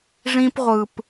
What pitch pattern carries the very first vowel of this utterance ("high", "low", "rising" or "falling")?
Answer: high